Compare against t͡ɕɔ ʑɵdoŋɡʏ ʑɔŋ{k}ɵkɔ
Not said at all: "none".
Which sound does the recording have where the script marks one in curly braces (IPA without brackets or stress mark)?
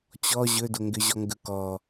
ɡ